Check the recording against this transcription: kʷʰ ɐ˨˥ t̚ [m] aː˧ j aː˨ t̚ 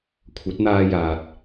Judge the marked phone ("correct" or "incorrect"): incorrect